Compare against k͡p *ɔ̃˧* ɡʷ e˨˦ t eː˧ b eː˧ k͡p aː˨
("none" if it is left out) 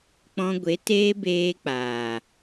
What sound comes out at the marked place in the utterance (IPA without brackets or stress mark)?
ɔ̃˧